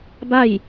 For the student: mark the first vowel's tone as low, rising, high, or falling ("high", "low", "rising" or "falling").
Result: falling